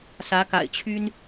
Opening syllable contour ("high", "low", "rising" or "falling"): rising